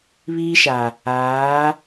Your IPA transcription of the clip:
β iː˦ ʃ a˨ | aː˨˦

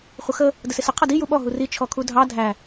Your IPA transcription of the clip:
χʷ ə x ə | d ə s ɪ s ə qʰ ʌ d i j u ɓ ɔ ɦ u r i t͡ʃʰ ɔ kʰ u dʱ ɑ dʱ æ

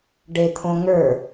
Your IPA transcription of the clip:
ɖ e t̪ʰ õ ŋ ə˞

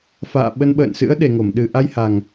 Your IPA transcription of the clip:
f a̰ː˧˨ ɓ ə˧ n ɓ ə̰ː˧˨ n s ɨ̰˧˥ ə̯ ɗ e˨˩ ŋ o˧˩ m ɗ ɨ˨˩ ʔ a˧ j h a˨˩ ŋ

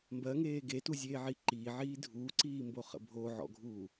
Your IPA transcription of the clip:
m b ɜ ŋ eː ɡ e t u zʲ eː ʕ i ǃ iː ʕ iː dʱ uː ǀ iː m b o χ ə̰ bʱ o ʕ ɔ̰ ɡʱ uː

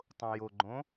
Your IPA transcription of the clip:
tˤ õ j o ɡ͡ǃ õ

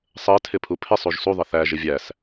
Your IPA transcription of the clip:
sˤ ɜ tʰ ɪ pʰ u pʰ ɪ sˤ u ʒ s u ðˤ ə θ æ ʒ ɪ vʲ æ s

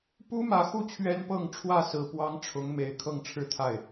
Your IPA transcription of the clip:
p u˥ m ä˧˥ x u˥˩ t͡ɕʰ ɥ ɛ˥ n p ɤ˥˧ ŋ ʈ͡ʂʰ w ä˥˩ s ɹ̩˨˩ p w ɑ˥ ŋ ʈ͡ʂʰ ʊ˧˥ ŋ m e˨˩ ɪ̯ kʰ ɤ˥˧ ŋ ʈ͡ʂʰ ɻ̩˥˧ t̪ʰ a˥˩ ɪ̯

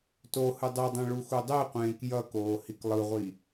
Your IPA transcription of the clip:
t o h ɯ dˤ e dˤ ẽ ɭ u x u dˤ e qʷ ẽː k j ʌ k oː h i k lˠ ɯ ʁʷ i

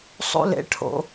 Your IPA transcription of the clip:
sˤ o̰˧ l ḛ˩˥ ʈʰ o̰˩

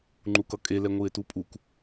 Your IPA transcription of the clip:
ŋ͡ǃ u k ʌ kʼ e l ɛ ŋʷ ɯ e̯ t u pʼ u k

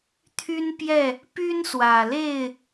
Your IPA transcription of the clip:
t̪ʰ y˦ n p j ɛ˥˨ | p y˦ n s w ä˨˩ l e˥˨ ɪ̯

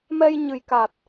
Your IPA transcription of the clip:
m ɛ˧ j ɲ ɨ˨˩ j k a˨˩ t̚

